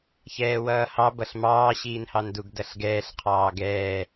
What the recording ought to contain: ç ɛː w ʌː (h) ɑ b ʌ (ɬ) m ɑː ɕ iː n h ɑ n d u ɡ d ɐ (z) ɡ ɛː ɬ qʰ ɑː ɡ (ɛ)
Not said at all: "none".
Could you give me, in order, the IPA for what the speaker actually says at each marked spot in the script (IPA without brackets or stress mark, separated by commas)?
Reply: h, ɬ, ɬ, ɛː